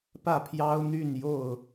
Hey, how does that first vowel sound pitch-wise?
falling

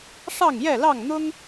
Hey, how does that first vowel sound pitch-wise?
falling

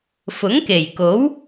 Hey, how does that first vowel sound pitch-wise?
rising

